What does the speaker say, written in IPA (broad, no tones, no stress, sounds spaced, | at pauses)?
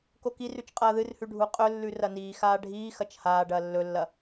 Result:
k o k i r ʉ t͡ʃ qʼ ɐː ð ɨ r h ʉ ɖʱ u qʼ ɵ lː ʉ r ɐ n iː x aː ɖʱ iː x ɐ t͡ʃ h aː ɖ ɐː lː ɵ lː ɐ